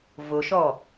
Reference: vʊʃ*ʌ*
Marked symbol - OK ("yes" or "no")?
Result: no